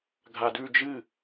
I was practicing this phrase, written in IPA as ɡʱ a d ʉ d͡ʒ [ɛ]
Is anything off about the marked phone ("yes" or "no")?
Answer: yes